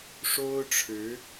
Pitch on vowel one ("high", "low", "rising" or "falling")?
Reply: high